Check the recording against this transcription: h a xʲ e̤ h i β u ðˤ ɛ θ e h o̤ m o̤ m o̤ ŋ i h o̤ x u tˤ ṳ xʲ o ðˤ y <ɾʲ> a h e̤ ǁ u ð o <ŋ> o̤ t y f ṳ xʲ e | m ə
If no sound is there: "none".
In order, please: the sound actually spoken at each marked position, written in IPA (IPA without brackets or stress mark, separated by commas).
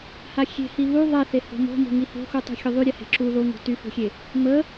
ɾʲ, ŋ